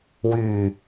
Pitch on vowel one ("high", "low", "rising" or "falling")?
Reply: low